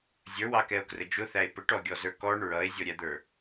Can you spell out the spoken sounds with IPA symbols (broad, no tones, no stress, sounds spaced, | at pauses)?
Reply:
zʲ ə˞ w ɑ k ɛ o̯ k r ə d͡ʒ ʊ θ æ e̯ p ə ʈ ɔ ɡʲ ɔ z ə˞ k ɔ ɳ ɹ ʌ e̯ zʲ ɔ ɾʲ æ d̪ ə˞